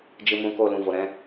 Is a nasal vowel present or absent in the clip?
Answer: present